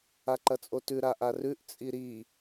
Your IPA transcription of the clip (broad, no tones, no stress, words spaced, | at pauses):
aǃɐt͡sʼotʉ ɾaʔarʉʔ t͡sʼiɾi